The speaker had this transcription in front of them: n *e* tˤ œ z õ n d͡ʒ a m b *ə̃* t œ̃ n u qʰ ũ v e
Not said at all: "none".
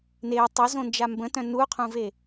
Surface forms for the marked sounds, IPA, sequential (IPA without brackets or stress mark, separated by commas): e, ə̃